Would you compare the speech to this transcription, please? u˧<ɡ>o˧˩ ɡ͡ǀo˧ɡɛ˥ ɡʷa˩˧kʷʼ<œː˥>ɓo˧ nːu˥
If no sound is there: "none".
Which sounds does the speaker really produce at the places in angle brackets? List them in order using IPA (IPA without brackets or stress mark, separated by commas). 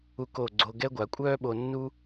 k, œː˥